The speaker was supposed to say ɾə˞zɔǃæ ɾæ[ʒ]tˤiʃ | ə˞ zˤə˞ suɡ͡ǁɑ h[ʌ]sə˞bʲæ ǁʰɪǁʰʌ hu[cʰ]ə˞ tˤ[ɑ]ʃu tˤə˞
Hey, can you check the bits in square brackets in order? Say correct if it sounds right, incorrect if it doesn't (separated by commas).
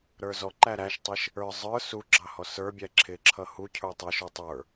incorrect, incorrect, correct, incorrect